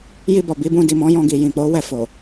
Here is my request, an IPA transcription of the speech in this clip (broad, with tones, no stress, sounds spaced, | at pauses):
j i˧ b ɔ˨ b i˨˦ b ũ˧ d i˨ m ɔ̃˨˦ j ɔ̃˧ ɡ i˨ j ĩ˨ k͡p o˨˦ w ɛ˧ f o˨